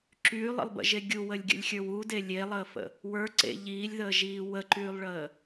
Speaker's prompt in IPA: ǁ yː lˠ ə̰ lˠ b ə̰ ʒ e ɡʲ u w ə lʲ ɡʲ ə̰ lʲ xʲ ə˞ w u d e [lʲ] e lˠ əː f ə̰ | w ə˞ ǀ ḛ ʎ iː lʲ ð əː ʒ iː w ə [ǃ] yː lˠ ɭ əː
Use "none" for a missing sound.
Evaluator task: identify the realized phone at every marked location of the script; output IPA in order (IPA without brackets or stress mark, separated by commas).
lʲ, ǃ